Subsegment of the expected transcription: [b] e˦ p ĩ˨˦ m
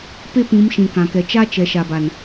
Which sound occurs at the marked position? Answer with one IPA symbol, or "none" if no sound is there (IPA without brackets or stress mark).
p